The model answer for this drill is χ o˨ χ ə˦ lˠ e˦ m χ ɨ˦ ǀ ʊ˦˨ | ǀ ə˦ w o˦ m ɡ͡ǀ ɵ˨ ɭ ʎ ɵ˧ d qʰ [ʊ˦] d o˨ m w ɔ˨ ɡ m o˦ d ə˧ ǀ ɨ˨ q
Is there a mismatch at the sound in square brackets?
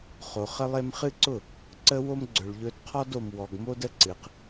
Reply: yes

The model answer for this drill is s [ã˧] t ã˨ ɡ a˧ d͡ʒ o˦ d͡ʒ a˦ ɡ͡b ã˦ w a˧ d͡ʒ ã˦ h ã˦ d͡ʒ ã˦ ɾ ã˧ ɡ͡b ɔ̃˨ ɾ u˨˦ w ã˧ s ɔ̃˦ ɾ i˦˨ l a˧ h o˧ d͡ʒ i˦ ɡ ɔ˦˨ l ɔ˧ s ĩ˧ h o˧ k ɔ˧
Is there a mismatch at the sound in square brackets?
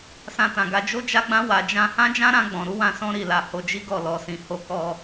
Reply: no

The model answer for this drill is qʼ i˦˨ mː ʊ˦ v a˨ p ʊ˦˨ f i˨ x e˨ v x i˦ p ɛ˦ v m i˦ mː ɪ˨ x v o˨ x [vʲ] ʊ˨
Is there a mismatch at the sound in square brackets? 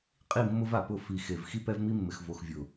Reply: no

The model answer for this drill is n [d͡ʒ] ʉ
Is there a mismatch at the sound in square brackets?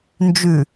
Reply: no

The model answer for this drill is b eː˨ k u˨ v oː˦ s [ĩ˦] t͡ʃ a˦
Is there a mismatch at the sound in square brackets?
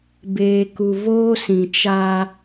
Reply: yes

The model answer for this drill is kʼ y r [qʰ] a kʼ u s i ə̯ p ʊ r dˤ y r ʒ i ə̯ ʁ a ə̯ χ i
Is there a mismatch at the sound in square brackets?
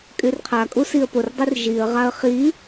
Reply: no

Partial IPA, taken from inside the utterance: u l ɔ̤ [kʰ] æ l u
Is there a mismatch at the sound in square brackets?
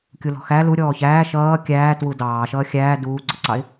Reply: yes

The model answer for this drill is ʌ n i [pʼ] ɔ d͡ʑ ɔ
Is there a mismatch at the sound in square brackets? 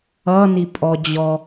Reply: no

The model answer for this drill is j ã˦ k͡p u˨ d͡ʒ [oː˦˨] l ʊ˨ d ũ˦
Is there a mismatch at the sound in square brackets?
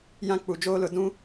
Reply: yes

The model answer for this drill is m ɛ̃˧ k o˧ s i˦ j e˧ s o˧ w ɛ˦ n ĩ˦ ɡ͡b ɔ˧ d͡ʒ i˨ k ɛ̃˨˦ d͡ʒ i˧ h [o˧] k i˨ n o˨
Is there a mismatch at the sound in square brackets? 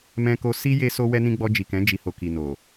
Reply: no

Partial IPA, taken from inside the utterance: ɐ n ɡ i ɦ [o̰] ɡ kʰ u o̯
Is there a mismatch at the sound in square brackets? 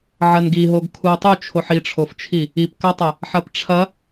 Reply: yes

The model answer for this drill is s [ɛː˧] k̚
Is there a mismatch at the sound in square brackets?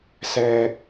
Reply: no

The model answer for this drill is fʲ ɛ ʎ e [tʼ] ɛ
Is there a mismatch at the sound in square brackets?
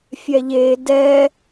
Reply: yes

